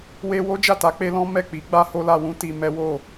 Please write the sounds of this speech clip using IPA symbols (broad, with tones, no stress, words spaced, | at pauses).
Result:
we˧wo˦ d͡ʒa˦˨ta˨˦k͡pe˦ lɔ̃˦ mɛ˦˨k͡pi˨˦ ɡ͡ba˦ho˦la˧wũ˦ ti˧mɛ˦wo˦˨